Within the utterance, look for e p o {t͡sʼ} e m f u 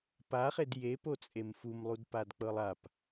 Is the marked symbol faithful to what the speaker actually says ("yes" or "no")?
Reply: yes